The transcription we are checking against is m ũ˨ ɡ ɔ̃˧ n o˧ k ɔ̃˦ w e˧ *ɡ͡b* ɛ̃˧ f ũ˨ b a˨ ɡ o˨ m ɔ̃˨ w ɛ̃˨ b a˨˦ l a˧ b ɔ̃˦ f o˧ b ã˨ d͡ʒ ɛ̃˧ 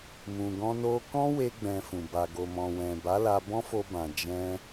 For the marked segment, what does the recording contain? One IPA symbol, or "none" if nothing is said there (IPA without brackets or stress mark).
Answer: ɡ͡b